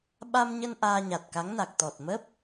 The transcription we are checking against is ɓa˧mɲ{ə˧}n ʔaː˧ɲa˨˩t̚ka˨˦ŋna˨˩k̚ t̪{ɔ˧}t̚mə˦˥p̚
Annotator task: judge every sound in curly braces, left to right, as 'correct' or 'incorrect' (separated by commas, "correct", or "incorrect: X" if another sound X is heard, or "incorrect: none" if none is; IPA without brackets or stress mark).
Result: correct, incorrect: ɔ˨˩